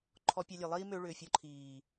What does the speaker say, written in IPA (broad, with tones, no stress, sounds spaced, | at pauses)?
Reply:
ǃʰ ɔ˧ pʲ ɑ˧ lʲ e˨ lˠ iː˦ m ø˧ ɭ ʏː˨ fʲ ɔ˧ ǃʰ iː˨